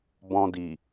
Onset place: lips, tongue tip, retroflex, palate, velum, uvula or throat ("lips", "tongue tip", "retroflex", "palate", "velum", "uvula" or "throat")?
lips